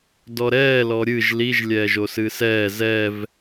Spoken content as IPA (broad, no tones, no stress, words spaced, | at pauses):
dɔɾɛːlɔ ɾʲɨʒ liʒ lʲɛːʒosɨsɛː zɛv